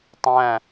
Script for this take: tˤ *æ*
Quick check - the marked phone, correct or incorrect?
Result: incorrect: æ̃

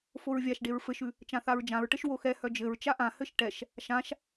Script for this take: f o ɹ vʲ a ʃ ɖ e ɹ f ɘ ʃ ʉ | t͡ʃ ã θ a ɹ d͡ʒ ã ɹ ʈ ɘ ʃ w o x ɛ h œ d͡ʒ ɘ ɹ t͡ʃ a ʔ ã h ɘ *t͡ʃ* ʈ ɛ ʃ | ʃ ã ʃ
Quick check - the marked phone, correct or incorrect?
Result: incorrect: ʃ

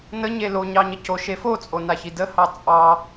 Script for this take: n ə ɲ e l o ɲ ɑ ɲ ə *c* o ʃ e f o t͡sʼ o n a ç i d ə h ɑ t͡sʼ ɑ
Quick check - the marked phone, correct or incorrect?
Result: correct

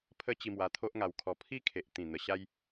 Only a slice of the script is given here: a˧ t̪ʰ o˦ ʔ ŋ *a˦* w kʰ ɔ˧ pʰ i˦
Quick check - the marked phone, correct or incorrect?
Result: incorrect: a˧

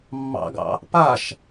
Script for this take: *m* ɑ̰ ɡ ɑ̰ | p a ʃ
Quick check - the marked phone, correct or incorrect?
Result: incorrect: mː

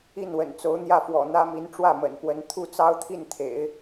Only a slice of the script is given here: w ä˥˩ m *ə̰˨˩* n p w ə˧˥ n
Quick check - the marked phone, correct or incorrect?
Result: correct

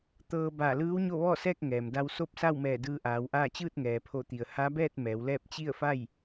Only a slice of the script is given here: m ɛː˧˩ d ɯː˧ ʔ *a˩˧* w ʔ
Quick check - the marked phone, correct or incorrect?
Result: incorrect: aː˩˧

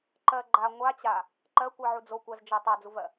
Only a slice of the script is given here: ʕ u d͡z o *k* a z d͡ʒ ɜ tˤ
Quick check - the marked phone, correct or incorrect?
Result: incorrect: kʷ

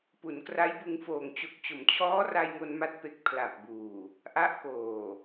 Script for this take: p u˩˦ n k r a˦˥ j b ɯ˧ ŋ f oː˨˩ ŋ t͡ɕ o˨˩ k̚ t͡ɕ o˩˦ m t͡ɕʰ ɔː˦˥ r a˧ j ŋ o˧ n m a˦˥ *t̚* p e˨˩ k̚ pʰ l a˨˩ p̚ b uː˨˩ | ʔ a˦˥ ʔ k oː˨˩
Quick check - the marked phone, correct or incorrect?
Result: correct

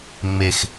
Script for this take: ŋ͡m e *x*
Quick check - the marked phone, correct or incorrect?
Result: correct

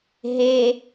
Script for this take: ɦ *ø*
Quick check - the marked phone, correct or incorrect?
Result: incorrect: e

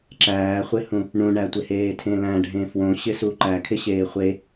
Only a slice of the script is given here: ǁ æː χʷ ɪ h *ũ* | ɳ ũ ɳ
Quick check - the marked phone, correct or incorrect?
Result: correct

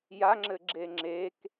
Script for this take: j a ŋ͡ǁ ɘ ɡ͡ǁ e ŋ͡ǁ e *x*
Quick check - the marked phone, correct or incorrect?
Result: incorrect: k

